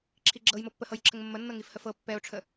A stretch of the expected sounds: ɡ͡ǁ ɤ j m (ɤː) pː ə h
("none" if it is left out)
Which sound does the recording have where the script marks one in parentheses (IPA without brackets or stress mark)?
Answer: ɤ